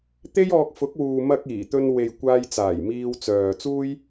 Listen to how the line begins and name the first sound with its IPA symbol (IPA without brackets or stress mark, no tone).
t̪